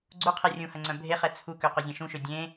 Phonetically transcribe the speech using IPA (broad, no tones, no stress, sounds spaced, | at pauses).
ɡ͡ǀ u qʰ e rʲ ũ h ɐ ŋ͡ǀ œ̃ bʱ e χ ɛ t͡sʰ u k ø q ø zʲ ẽ ʃ ũ ʃ ø dʲ ẽ